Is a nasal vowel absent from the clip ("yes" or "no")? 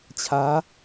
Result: yes